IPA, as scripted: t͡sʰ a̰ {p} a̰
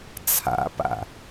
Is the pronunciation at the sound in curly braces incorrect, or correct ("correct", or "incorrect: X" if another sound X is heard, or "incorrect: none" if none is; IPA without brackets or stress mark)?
correct